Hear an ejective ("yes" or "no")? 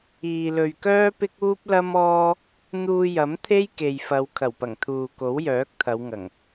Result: no